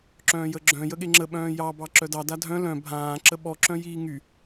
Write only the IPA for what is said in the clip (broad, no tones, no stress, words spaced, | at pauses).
ǁœ̃ːjəɡ͡ǁœ̃ jəɠeŋ͡ǁə ɓœ̃ːjɑ bɑǁœdɑ dadʱœ̃ lœ̃ bʱãː ǁəɓɔ ǁœ̃jiːŋy